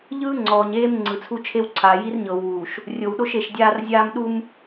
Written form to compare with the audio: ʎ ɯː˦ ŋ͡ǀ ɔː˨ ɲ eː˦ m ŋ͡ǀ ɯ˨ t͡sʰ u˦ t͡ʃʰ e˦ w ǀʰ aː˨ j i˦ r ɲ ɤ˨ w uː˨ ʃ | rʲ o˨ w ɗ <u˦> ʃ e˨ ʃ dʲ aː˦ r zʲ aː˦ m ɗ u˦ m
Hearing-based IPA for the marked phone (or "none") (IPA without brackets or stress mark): o˦